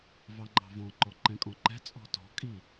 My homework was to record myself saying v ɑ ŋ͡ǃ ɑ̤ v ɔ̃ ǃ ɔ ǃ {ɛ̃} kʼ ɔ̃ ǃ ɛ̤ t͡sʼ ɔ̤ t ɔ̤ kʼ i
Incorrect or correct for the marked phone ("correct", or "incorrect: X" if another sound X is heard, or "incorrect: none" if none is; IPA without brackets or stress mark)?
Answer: correct